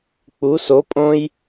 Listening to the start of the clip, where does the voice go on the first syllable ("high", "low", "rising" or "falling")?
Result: rising